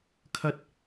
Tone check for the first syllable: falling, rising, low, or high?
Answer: high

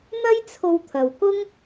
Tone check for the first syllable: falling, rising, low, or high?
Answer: high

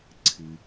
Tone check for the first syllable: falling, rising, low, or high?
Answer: low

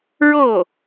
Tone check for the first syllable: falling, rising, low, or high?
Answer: falling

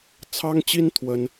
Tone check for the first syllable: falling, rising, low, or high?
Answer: high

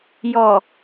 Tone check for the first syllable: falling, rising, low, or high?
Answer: low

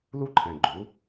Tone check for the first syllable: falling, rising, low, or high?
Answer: high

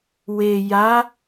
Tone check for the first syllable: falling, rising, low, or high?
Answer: low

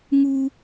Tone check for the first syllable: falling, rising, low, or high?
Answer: low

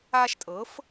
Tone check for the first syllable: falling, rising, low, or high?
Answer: high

